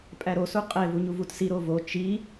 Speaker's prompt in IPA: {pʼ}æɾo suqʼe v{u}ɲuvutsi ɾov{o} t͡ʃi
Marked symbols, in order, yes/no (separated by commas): yes, yes, yes